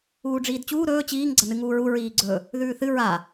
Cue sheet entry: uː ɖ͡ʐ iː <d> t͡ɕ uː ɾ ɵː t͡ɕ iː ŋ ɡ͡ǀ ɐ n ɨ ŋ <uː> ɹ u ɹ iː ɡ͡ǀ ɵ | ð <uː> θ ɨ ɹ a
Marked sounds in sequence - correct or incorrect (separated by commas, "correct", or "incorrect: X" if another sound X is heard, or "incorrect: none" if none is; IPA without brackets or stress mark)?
correct, correct, incorrect: ʉː